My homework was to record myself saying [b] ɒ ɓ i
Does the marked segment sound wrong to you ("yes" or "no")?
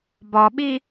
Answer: no